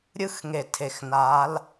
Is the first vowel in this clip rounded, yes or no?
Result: no